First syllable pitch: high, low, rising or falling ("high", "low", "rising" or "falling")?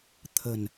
low